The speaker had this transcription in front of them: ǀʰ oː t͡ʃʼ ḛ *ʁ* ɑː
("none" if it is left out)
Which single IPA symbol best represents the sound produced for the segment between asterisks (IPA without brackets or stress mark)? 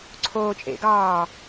ɡ